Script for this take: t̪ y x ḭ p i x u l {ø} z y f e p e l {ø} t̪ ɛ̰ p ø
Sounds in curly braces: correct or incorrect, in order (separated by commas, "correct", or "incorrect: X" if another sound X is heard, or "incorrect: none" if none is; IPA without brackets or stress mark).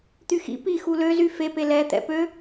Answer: correct, incorrect: ɛ